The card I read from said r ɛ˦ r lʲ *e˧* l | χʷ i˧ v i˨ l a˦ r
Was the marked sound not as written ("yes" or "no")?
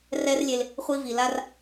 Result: no